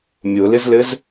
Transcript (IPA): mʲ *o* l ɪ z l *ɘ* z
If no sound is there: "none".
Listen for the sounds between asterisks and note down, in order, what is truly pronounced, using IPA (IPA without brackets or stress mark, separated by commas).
o, ɘ